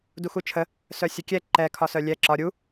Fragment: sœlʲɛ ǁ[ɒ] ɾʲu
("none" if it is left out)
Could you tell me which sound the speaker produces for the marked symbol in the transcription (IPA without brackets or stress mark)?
ɒ